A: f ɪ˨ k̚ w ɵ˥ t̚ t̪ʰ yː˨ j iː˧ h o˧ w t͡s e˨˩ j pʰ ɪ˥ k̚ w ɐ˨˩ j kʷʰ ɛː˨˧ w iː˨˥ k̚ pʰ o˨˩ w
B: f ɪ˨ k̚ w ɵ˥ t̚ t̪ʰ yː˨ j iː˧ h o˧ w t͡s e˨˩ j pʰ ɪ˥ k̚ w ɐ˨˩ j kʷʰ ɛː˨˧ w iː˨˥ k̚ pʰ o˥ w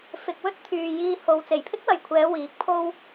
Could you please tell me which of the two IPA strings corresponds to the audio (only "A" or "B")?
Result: B